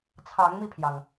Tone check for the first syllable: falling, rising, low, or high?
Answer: rising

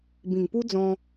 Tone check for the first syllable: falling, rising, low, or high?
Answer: low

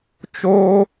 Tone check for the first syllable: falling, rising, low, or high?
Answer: high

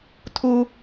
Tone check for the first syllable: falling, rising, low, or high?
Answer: high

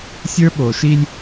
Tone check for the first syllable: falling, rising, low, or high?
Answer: high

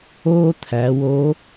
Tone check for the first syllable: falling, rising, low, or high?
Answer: high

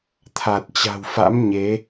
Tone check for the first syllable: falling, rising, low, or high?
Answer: low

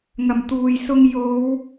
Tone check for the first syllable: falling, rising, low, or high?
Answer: low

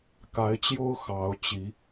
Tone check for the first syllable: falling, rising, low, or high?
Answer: rising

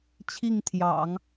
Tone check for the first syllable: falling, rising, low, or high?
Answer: falling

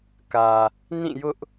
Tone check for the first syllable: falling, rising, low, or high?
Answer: low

